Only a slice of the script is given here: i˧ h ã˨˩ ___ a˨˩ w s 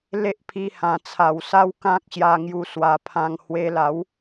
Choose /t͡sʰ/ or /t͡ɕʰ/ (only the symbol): t͡sʰ